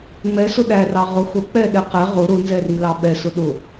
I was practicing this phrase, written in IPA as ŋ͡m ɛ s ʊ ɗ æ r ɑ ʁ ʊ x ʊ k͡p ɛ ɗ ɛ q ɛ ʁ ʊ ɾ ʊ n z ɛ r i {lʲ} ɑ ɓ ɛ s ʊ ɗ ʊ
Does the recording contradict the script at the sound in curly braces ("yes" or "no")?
yes